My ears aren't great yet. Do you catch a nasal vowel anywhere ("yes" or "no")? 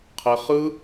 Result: no